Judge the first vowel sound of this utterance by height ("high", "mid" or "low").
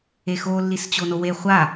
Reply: mid